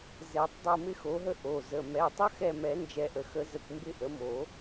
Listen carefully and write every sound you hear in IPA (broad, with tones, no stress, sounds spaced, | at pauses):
z ɛ˨˩˦ tˤ dˤ o˦˨ m ɪ˦ x o˩˥ ɦ ə˦ ʔ o˩˧˩ z ə˩˧˩ m ɛ˩˧˩ tˤ ə˦ x ɛ˦˨ m ɛ˨˩˦ n d͡ʒ ɛ˨˩˦ ʔ ə˩ x ə˨˩˦ z ə˩˧˩ kʷ m b ɪ˦˨ ʔ ə˩˥ m o˨˩˦